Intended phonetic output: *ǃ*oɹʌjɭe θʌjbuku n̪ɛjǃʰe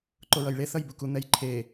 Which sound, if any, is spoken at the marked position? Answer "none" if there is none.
ǃ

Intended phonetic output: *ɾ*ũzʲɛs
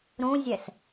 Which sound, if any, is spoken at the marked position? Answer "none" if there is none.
ɾ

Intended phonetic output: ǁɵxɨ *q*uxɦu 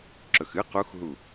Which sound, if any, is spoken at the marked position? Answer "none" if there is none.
q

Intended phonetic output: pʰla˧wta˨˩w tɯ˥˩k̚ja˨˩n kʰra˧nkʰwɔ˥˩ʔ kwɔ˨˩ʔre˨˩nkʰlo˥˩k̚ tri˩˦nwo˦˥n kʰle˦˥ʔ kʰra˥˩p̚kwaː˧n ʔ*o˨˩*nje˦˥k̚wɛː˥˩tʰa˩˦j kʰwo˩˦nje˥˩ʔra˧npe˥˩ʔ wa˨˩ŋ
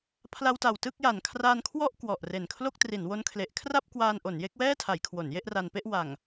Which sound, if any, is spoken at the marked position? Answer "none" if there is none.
o˩˦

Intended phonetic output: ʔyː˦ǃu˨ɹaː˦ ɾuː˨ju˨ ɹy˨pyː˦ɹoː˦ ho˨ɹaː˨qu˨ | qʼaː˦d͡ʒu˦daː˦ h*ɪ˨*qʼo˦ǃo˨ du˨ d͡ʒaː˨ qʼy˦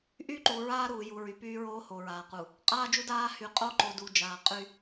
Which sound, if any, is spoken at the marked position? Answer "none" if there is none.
y˨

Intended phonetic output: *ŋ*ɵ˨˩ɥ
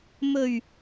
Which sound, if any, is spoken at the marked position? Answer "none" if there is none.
m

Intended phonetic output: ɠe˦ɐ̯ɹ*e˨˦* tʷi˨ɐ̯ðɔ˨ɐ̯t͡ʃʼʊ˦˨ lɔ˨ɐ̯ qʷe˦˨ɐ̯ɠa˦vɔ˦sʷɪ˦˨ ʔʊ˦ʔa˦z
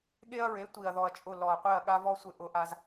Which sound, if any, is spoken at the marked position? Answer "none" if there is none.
e˨˦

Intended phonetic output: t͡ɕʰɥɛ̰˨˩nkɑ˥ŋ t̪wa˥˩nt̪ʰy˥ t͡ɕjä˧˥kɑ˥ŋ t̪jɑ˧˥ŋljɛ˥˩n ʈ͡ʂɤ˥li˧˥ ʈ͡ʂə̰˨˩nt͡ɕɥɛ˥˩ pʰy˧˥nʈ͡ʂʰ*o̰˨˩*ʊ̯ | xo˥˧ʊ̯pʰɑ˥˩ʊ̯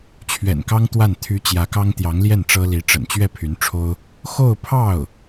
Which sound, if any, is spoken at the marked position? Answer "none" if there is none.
o˥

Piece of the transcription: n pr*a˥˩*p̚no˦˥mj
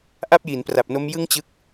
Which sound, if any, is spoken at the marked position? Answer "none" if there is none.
a˨˩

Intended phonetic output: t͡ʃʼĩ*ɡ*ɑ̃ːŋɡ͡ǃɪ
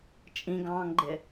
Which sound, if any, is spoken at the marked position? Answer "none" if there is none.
ɡ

